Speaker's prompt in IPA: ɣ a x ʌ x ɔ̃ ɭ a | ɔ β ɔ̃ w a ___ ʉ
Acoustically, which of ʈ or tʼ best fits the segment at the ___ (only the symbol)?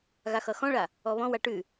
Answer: ʈ